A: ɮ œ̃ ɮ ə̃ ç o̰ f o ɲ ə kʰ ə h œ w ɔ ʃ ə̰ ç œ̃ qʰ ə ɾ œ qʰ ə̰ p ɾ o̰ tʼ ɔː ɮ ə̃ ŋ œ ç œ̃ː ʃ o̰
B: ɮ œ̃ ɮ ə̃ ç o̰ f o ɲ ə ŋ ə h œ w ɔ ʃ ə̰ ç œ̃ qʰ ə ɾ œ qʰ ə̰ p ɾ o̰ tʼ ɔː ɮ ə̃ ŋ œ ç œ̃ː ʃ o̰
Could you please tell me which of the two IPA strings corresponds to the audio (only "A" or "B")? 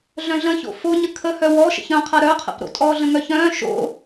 A